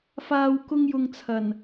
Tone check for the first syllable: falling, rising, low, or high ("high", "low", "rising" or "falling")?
low